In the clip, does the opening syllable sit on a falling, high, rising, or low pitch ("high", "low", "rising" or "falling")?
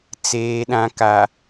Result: low